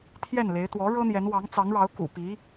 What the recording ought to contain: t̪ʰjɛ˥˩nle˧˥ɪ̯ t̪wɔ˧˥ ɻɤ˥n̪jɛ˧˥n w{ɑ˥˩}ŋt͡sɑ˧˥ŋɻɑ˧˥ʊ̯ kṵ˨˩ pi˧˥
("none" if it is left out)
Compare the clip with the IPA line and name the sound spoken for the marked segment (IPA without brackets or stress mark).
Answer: ɑ˧˥